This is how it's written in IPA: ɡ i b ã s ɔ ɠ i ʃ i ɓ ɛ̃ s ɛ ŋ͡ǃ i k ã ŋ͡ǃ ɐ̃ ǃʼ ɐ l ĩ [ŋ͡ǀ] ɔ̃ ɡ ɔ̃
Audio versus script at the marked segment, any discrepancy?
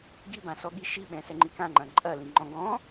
yes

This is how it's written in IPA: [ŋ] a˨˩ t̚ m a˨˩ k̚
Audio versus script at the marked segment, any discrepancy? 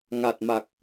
no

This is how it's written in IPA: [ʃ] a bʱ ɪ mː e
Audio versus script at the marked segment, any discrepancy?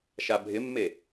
no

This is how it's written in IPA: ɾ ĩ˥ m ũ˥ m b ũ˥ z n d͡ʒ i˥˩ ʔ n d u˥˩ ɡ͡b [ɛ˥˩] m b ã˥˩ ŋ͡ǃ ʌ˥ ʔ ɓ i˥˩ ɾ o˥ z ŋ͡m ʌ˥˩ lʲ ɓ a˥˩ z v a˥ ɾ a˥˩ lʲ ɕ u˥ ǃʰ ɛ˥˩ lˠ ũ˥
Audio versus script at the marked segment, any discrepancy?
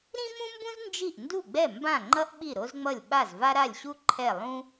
no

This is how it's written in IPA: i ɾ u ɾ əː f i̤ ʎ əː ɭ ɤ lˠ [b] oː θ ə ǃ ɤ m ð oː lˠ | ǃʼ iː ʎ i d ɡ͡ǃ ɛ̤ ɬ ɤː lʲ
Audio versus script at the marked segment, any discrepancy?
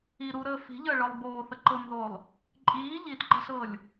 no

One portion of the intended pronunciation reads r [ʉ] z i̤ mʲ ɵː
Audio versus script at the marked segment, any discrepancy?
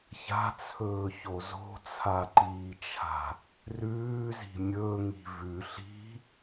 yes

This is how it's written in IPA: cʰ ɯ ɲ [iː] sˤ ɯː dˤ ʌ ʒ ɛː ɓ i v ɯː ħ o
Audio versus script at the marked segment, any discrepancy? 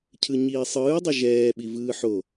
no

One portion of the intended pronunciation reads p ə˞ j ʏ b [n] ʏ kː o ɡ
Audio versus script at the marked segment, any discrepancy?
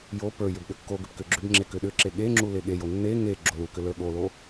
yes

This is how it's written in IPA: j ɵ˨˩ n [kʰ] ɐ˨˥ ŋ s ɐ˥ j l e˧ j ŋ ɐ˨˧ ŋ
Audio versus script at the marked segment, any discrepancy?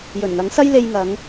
yes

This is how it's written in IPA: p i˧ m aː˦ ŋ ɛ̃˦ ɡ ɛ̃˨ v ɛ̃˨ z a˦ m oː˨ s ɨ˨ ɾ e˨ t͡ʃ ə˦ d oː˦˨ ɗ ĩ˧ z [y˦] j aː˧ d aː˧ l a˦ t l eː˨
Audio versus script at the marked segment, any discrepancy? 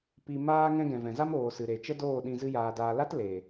yes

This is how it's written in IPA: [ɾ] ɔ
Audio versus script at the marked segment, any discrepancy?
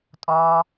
yes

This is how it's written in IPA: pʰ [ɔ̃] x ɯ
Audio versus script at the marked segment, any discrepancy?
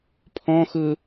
no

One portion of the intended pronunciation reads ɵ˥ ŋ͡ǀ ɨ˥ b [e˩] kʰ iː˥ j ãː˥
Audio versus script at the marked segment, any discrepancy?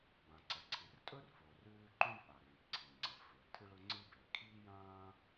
no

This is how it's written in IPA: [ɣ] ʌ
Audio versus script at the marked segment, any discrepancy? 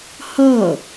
yes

